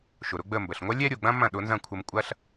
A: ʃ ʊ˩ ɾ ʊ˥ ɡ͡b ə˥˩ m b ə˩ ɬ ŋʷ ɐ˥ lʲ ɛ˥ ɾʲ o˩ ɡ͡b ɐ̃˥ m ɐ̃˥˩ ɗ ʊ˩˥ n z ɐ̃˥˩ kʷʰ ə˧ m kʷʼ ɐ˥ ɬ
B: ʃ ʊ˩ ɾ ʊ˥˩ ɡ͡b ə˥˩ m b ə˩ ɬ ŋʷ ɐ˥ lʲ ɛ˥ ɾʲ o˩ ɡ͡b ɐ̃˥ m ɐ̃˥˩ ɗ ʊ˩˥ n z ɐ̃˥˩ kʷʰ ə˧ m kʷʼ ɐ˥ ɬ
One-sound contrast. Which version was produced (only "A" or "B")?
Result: A